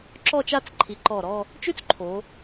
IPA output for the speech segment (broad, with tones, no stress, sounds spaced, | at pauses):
ǁ ɔ˥˧ t͡ʃ a˥˧ t͡s ǃʰ i˩˥ ǃ ɔ˧˩ ɾ ɔ˥˧ | t͡ʃ ʉ˥ t͡s ǃʰ o˩˧